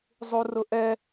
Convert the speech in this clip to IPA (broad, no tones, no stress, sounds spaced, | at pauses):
zˤ u r ʊ ʔ ɛ